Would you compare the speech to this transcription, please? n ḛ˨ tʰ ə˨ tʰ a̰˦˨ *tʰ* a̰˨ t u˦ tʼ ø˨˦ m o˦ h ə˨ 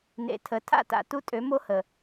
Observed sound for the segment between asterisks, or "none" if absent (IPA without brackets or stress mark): t